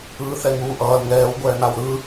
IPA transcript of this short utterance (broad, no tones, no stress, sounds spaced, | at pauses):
ɯː θ ɛ ŋ uː ʔ ʌː l ŋ ɛː w ɡʷ ɛː n̪ a w ɾ ɯ